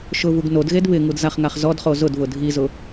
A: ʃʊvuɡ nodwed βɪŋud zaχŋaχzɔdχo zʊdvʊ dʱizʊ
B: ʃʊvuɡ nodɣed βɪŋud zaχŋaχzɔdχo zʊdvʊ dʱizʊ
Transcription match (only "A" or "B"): B